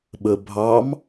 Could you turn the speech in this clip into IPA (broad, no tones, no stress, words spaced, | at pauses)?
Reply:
ɓəbʱɑm